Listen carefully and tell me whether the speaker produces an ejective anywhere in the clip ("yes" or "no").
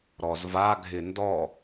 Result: no